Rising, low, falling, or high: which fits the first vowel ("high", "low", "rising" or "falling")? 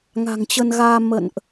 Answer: low